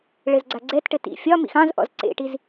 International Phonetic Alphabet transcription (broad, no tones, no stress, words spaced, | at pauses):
ɭɘzɡ͡ǀaɡ͡ǀɛtʈɘ tḭ fʲɒ mḭxɑ̃zʔɔ̰z ǀḛʈiz